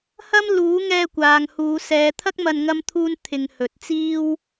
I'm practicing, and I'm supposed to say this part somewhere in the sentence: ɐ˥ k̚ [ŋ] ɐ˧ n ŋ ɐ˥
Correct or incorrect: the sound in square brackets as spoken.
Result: incorrect: m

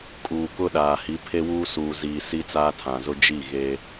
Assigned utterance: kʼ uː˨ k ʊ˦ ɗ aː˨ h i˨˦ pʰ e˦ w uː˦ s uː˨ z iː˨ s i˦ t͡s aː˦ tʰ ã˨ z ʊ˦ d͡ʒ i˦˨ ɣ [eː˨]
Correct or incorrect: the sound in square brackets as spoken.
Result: incorrect: eː˦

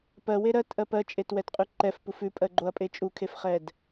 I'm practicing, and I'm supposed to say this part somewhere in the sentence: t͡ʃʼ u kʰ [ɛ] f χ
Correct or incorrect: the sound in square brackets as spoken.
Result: incorrect: e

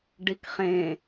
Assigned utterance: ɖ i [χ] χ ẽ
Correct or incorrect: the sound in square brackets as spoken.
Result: incorrect: k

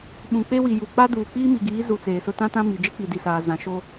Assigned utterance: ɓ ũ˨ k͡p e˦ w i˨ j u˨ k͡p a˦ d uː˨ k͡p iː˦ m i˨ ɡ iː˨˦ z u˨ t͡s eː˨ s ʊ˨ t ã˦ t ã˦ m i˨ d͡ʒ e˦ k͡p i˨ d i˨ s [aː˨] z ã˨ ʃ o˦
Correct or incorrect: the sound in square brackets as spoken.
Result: correct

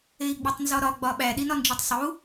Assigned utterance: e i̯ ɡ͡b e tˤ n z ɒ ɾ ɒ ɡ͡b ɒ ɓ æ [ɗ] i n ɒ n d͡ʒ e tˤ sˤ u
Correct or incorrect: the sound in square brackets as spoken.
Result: correct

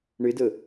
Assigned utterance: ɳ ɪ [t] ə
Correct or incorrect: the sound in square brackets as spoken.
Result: incorrect: d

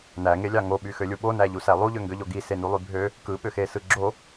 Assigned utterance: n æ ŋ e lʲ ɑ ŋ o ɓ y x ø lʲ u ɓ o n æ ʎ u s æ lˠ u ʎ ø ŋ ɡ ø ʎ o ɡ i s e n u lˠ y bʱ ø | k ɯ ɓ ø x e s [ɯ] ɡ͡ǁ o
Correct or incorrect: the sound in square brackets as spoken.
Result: correct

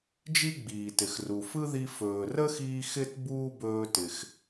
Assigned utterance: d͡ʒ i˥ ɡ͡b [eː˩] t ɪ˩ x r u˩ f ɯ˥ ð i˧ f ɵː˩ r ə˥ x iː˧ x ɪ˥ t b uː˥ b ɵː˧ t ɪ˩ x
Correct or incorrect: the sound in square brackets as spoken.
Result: incorrect: iː˩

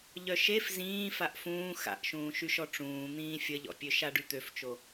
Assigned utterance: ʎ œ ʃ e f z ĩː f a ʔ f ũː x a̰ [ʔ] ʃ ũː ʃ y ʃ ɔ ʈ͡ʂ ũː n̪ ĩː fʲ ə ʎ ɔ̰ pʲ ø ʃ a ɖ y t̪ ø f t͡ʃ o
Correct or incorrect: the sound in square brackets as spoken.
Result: correct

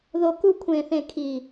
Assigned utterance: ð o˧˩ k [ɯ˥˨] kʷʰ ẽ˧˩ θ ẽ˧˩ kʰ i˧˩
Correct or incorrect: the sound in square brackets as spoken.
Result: incorrect: u˥˨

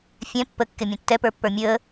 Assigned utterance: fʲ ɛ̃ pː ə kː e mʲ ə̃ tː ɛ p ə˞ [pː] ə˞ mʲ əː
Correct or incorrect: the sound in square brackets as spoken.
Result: correct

